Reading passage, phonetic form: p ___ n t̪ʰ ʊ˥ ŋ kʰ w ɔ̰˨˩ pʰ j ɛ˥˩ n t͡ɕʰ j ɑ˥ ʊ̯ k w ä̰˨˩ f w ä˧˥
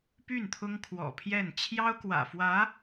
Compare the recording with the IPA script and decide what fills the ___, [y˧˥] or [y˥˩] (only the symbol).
y˥˩